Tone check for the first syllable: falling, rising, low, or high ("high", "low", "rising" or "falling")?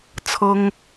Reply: high